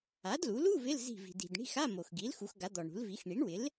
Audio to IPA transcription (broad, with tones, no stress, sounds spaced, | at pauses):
a˩˥ d l u˩˥ l u˧˥˧ v ɪ˧˥˧ l z i̤˧˩ v i̤˩ d i̤˩ d ɳ i̤˧˥˧ x a˧˥˧ m o˩ x ɡ i˩˥ l x u˩˥ x ɡ a˩˥ d̪ ɔ˩ ɳ ṳ˩˥ l v i˩˥ x ɳ i˩˥ ɳ w ɪ˩˥ l